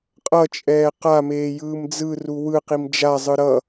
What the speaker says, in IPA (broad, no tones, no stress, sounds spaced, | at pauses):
qʼ ʌ t͡ʃʼ ɛː q a m eː j ɯː m d͡z ɯ r u w ɯ q i m d͡ʒ a zˤ ɯ ɾ ʌ